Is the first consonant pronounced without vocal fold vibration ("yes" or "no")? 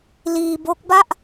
no